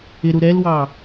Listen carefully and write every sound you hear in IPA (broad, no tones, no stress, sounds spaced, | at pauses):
ɪ ɾ u ɾ ɛ l w ɑː